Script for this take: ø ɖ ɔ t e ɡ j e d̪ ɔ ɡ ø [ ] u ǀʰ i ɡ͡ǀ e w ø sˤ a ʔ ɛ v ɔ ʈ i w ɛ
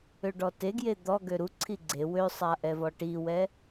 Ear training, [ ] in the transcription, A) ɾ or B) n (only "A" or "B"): A